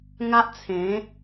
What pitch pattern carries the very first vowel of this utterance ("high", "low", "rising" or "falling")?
high